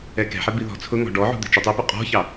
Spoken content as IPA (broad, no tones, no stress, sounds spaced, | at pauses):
ɛ k ɛ̤ ħ ɛ b i ð ɔ̤ t͡sʰ ʊ ŋ ɔ̤ ɖ ɔ ʕ ṳ d̪ ɛ̤ t͡ʃ ʌ tˤ i p u qʼ ɔ̤ ç ɑ